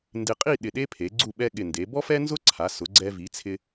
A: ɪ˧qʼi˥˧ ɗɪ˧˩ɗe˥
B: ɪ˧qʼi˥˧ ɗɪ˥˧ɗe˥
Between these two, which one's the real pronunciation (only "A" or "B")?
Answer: A